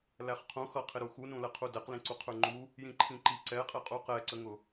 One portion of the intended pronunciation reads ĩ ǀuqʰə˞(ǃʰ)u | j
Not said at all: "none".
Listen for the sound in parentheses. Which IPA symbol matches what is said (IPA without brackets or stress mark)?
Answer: ŋ͡ǃ